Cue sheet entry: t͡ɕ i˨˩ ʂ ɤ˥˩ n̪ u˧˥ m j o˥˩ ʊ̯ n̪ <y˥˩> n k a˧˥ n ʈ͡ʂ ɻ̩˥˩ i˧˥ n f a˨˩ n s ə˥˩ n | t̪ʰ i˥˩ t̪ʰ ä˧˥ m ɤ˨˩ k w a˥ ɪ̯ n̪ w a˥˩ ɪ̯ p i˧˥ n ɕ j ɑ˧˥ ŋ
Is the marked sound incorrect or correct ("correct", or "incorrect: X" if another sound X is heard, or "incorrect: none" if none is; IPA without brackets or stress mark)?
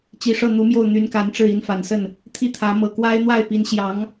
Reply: incorrect: y˧˥